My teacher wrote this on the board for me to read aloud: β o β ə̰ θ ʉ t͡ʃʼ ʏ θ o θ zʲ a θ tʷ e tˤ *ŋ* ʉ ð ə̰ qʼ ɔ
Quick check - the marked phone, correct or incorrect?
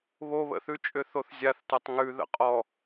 correct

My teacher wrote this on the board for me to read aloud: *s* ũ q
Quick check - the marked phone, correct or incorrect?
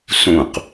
correct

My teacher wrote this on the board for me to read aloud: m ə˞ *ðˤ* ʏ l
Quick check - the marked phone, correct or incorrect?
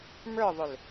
correct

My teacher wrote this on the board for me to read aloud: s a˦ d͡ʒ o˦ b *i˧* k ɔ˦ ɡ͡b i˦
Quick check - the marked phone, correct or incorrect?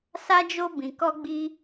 incorrect: ĩ˧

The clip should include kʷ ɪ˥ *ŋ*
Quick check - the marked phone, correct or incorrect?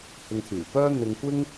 correct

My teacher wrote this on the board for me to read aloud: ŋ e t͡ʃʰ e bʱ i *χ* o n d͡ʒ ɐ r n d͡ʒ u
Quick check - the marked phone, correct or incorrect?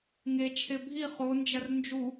correct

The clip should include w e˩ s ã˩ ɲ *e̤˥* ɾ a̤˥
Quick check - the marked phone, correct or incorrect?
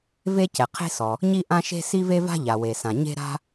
correct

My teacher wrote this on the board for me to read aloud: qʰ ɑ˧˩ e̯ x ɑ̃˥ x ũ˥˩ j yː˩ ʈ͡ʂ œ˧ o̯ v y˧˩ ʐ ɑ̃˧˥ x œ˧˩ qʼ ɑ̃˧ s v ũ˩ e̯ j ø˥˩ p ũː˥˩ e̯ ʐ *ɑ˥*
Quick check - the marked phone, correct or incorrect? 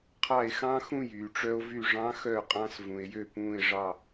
incorrect: ɑ˥˩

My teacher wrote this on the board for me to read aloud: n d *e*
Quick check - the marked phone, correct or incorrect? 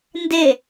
correct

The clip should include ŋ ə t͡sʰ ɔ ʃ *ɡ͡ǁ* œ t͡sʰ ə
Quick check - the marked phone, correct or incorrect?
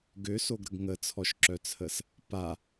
incorrect: ǁ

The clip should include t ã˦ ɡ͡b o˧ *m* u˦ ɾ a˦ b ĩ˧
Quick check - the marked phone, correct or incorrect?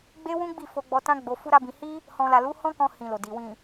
incorrect: f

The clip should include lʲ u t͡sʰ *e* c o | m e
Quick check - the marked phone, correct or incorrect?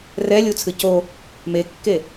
incorrect: ɨ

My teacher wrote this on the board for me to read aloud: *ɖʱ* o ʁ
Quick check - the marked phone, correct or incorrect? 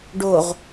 incorrect: ɖ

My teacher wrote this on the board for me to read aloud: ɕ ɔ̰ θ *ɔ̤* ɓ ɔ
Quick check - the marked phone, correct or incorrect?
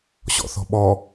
correct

